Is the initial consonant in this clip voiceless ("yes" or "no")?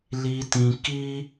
no